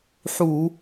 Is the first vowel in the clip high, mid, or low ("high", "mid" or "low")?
high